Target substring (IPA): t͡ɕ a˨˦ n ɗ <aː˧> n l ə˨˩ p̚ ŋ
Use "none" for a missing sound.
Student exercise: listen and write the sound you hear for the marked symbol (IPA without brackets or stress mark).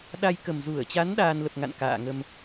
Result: aː˧